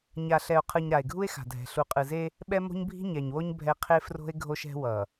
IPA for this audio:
ɲa˨ɬɛ˨o̯qʰɯ˨ɲ ɾa˨e̯ɡʱu˦e̯xa̤˨dʱɛ̤˨ ɬu˨qʼɯ˨ze˦ | ɓɛ˦ mo̤˦ɲbʱi̤˦ ɲɛ˨ɲwo˦ɲ bʱɛ˦ qʰe˦fro̤˦e̯ ɡʱo˦ʃɛ̤˦wʌ˨

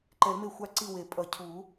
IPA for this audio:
ǃɛ˨˩˦lme˦˨xʷa˦˨ ǀi˦˨we˨˩˦ pʼʌ˨˩˦cʰu˨˩˦

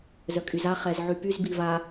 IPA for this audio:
zœkʼyza χɛzʕypyz biva

